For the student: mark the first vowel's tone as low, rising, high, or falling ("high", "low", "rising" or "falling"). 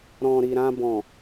low